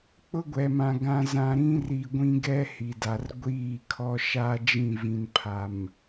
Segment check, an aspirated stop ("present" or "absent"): present